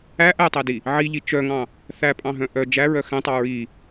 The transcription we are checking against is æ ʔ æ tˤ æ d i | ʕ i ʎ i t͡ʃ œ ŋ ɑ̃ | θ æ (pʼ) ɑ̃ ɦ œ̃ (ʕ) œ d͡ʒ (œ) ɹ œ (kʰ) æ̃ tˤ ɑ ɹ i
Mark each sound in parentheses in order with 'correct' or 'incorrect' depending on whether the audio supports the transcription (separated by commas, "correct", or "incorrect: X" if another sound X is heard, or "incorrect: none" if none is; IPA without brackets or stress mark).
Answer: correct, incorrect: ʔ, incorrect: æ, incorrect: x